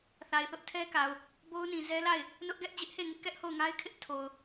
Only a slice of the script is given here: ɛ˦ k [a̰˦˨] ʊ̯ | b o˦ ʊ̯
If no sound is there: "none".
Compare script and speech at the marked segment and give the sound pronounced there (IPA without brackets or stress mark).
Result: a˨